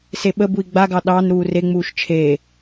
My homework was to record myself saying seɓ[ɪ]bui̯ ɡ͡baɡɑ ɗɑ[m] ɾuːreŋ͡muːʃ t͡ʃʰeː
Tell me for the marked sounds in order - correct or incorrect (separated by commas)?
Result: incorrect, incorrect